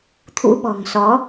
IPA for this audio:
t̪ʰ ṵ˧˥ ɓ ɔ̤˨˩ ŋ s ɔ˨˦

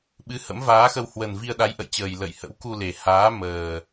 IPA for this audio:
ɓ ɨ˨˦ h ə̰˧˥ m v aː˨˦ x ə˧ w h w ə˨˩ n v i˧ ə̯ ɗ a˨˦ j ʔ ə̰˧˨ j t͡ɕ əː˨˩ j l ə̰˧˨ j h ə̰˧˥ w k u˧ l e˨˩ h aː˨˦ m əː˨˩

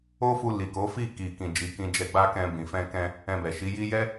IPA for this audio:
o˦ f u˧ l i˨ k o˨˦ f i˦˨ k i˨ k ĩ˨ d͡ʒ i˨˦ k ĩ˧ d͡ʒ ɛ˧ ɡ͡b a˦ k ɛ̃˧ b ĩ˨ f ɛ̃˧ k ɛ̃˧ | ɛ̃˧ b ɛ˨ ʃ i˨˦ j i˦ j ɛ˦

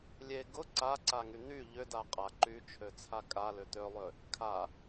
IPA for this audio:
lʲ e ɡ ʊ ǀ a ǀ a ŋ y n̪ y ʎ ʏ d a qʼ a ǃ y t͡ʃʰ ø t͡sʰ a kʼ a l ʏ t̪ ø lˠ ø | kʰ a

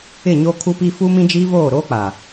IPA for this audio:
ɪ˦˨ ɲ oː˦ kʰ u˦ p iː˦ f u˦ m ĩ˦ d͡ʒ iː˦ v oː˦˨ ɾ oː˦ k͡p a˨

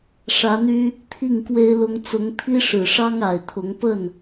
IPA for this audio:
ʂ ä˧˥ n̪ y˥ | t̪ʰ i˥˩ ŋ k w e˥ ɪ̯ l ʊ˥ ŋ t͡s ʊ˧˥ ŋ t̪ʰ i˥ ʂ ɻ̩˨˩ ʂ ɑ˥ ŋ a˨˩ ɪ̯ t̪ʰ ʊ˧˥ ŋ p ə˥˩ n

